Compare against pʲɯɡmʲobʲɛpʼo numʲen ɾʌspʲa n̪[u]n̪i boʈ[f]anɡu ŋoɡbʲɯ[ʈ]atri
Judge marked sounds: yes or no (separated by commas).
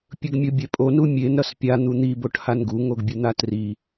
yes, no, no